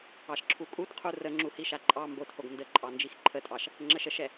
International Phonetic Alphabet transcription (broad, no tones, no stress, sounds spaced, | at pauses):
ɑ ʃ ǁʰ u kʼ u t qʰ u r ə ŋ͡ǁ u h i ʃ a ǃʼ ɑ m b o t h o ɡ n d ə ǃʼ ɑ n d͡ʒ i x ǃʰ ə tʼ ɑ ʃ | ŋ͡ǁ ə ʃ ə ʃ ɛ